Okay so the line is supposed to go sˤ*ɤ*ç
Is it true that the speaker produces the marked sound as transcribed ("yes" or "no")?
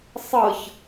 yes